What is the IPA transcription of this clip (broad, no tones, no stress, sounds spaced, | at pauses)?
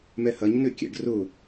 m ɛ h ɐ ɲ n ø kʲ ɛ̰ ɖ r ʊ